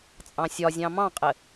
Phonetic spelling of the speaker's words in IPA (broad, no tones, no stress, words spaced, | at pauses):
t͡sʼɑ̃sʲɒzʲɑ̃ mɑ̃qʼɘ